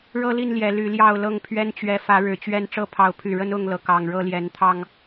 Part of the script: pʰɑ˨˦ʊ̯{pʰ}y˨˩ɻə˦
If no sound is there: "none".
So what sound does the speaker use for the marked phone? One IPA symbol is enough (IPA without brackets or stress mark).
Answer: pʰ